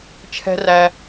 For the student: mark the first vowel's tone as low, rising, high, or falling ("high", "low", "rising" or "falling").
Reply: high